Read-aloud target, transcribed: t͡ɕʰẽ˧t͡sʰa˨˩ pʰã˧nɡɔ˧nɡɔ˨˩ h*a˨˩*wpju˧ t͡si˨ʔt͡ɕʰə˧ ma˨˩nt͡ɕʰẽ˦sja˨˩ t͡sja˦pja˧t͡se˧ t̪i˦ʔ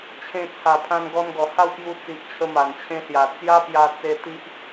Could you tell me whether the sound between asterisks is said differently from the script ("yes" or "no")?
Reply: yes